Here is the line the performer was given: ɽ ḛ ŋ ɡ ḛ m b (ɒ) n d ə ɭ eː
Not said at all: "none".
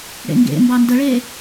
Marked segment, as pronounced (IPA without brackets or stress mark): ɑ